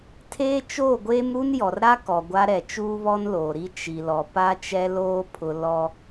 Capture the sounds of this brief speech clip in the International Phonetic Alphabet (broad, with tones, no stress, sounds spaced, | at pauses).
tʰ eː˦ t͡ʃ oː˦˨ ɡʷ eː˦ m ɾ u˦ n j ɔ˨ r ɾ a˦ k ɔ˨ ɡʷ a˦ ɾ ɛ˨ t͡ʃ uː˦ β ɔ˦ n l oː˨ ɾ i˦ t͡ʃ i˨ l ɔ˨ p a˦ t͡ʃ ɛ˦ l oː˦ pʰ ʊ˦ l ɔ˦